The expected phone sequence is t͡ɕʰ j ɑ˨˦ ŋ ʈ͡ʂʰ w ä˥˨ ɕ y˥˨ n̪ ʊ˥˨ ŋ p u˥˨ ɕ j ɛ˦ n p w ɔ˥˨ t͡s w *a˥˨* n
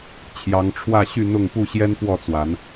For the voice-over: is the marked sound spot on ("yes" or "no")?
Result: no